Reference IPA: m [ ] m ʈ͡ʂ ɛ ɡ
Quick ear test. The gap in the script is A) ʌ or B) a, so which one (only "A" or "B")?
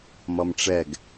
A